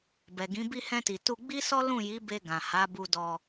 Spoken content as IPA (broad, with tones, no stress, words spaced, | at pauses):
bɛ˨ɡĩ˨˦ bi˧hɛ̃˧ti˨ tu˧ɡ͡bi˦sɔ˦ lũ˦˨ji˨˦be˧ ɡã˨ha˨˦bu˧ dɔ˧